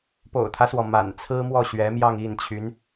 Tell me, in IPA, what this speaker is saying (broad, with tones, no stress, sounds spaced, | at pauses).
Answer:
p o̰˨˩ ʊ̯ t̪ʰ ä˦ s w ɔ˩ m a̰˨˩ n t͡sʰ ɹ̩˥ m w ɔ˥˩ ɕ ɥ ɛ˧˥ m j ɑ˥˧ ŋ i˥˩ n t͡ɕʰ y˧˥ n